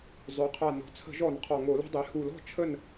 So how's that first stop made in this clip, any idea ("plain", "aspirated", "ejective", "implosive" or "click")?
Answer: aspirated